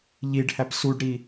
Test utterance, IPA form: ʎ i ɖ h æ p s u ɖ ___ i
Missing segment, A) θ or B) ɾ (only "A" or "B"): B